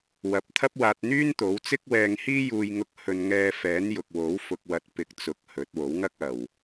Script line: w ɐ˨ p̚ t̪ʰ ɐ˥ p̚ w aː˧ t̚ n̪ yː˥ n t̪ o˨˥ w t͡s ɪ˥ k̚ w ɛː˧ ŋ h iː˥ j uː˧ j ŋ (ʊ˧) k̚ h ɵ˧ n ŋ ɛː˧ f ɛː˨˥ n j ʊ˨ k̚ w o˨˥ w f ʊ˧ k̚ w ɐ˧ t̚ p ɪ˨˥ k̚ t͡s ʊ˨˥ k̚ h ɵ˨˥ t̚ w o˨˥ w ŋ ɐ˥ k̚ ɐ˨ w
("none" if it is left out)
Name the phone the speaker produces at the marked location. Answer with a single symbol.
ʊ˧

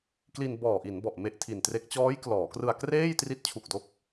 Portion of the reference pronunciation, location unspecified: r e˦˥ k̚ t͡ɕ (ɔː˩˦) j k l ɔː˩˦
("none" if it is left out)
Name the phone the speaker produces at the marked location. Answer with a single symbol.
ɔː˦˥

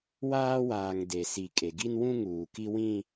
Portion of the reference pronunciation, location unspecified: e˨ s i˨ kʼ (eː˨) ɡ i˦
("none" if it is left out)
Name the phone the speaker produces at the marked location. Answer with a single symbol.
e˨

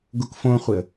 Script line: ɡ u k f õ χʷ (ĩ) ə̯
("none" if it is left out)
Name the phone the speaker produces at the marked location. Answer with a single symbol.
i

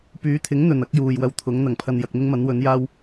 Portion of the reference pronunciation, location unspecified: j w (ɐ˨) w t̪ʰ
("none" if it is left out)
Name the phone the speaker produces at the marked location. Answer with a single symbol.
ɐ˧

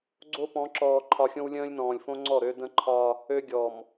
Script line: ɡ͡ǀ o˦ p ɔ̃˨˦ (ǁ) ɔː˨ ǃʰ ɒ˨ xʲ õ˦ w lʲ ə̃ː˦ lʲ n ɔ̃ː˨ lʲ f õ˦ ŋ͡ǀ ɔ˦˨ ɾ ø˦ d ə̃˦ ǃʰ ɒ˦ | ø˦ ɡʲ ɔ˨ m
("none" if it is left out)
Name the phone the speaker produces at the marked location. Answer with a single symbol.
ǁ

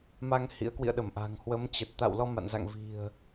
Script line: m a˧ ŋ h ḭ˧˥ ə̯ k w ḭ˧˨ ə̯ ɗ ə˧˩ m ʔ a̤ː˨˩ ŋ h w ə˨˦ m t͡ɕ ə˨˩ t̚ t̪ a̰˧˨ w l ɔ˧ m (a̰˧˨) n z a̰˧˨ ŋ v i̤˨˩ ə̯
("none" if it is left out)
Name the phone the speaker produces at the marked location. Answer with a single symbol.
a̰˧˨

